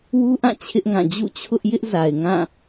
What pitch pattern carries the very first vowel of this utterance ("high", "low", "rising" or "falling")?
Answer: high